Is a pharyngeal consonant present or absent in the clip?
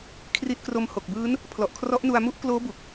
absent